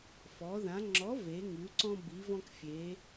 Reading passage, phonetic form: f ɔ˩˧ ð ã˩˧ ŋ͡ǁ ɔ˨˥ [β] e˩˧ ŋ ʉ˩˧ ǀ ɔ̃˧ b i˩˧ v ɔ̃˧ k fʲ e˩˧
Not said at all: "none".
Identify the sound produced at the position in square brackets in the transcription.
v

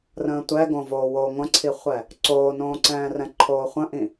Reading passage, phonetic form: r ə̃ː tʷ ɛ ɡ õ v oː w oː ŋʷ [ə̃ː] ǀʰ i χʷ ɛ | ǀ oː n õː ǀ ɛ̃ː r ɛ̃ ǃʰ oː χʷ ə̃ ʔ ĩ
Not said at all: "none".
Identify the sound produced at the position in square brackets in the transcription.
ə̃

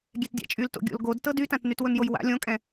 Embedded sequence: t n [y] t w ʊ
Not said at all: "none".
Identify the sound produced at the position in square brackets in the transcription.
y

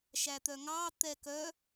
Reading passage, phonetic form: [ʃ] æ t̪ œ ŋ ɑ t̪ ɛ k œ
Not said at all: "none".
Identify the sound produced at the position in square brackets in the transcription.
ʃ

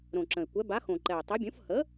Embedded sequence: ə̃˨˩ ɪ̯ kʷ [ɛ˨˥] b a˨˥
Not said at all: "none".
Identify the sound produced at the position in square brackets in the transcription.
ɛ˨˥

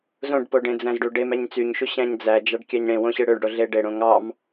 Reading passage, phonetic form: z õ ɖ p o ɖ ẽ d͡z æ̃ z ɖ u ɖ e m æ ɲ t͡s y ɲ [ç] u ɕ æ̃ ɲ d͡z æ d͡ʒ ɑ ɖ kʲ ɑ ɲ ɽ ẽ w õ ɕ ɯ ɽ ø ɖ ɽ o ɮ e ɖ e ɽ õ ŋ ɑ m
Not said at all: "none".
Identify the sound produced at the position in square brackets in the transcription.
ʃ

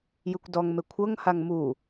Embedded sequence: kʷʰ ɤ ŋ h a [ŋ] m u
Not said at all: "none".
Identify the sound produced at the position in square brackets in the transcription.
ŋ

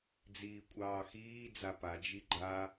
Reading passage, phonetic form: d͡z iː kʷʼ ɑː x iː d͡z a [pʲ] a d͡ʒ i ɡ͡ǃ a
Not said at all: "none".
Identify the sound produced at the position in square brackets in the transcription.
p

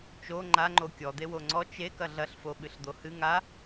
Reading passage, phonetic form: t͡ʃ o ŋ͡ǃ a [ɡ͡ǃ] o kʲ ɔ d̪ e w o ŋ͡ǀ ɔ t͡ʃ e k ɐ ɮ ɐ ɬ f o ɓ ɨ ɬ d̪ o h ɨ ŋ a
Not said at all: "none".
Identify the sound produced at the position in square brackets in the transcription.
ŋ͡ǃ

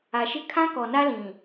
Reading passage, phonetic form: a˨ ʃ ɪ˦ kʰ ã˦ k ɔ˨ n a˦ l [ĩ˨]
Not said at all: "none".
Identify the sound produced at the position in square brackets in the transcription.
ĩ˨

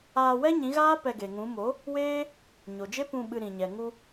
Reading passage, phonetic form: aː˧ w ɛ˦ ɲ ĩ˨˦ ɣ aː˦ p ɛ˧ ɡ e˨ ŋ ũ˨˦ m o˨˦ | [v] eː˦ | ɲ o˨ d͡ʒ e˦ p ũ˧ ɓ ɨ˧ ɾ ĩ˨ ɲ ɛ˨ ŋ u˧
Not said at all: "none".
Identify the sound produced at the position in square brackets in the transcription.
w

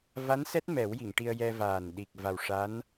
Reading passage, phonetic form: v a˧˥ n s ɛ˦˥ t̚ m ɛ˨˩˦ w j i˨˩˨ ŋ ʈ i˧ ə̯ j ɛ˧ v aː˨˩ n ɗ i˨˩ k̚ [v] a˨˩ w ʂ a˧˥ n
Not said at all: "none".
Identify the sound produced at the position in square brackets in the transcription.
v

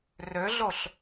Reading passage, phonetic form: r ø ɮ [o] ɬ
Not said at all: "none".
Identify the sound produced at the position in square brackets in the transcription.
o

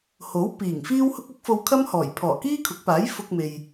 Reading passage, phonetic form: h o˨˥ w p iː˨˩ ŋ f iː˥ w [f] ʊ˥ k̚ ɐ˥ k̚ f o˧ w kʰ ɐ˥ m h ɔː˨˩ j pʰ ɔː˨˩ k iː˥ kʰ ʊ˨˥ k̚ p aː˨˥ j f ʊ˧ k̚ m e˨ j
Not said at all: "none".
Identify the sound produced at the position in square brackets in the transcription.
h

